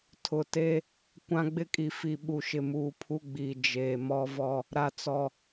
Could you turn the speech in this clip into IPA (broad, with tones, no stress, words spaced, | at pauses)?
tʰʊ˨te˦ | kʷã˦ɡ͡bɪ˦kʼi˨fi˨ ɓu˨ʃɪ˨muː˨ pʰu˦ɡ͡biː˨ d͡ʒeː˨mɔ˦vɔ˦ | ɾa˨t͡sɔ˨